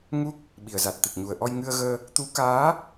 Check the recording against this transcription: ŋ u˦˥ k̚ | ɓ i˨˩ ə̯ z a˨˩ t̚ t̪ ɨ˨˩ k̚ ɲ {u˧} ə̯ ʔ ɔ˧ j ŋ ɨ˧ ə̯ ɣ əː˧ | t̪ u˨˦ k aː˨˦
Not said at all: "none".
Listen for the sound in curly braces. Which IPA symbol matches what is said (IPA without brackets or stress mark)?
u˨˩